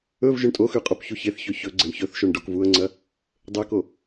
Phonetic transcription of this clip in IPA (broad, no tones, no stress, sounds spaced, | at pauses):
ɵ v ʒ ɵ ɳ tʼ o x ʉ qʼ o p ç u ç e θ ç ɵ ç ɵ ɡ͡ǀ e ɳ ç ɵ θ ʃ o ɳ ɖ o k v u ə̯ ŋ͡ǀ ɐ | dˤ e k o